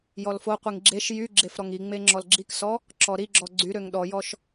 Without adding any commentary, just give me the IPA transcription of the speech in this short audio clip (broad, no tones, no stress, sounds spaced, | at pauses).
j ɔ l f o qʷ i ŋ ɡ͡ǁ e ʃ j y ɡ͡ǁ e f ɾ ɔ ŋ i ŋ͡m e ŋ͡ǁ ɔ l ɡ͡ǁ i k s ɔ | ǁ ɔ ɾ i ɡ͡ǁ ɔ ɡ͡ǀ y ɾ ø ŋ ɗ ɔ j ɔ ʃ